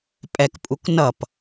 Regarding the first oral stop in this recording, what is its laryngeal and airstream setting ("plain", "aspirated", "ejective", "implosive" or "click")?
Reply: ejective